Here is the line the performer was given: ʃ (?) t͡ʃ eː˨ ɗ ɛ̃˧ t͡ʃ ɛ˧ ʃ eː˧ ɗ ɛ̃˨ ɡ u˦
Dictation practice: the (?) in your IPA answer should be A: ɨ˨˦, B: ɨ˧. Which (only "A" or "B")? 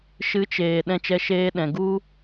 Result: A